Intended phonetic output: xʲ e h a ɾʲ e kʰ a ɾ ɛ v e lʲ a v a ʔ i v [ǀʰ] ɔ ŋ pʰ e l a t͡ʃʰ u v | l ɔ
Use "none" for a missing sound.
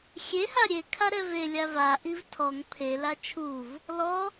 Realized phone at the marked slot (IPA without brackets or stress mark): tʰ